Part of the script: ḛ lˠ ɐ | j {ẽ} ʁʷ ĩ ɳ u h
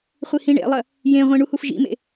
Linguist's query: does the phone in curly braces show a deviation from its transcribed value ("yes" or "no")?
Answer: no